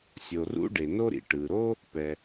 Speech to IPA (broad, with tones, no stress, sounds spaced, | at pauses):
sʲ o˩ r ṵ˥ ɖ e˩ n o˥ ɾ ḭ˩ ʈ ɯ˩ ɾ o˥ | p ɛ˩